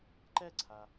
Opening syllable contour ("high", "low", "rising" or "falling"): falling